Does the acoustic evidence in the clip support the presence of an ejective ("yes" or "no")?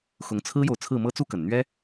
no